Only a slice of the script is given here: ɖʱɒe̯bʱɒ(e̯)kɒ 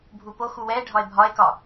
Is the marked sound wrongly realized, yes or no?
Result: no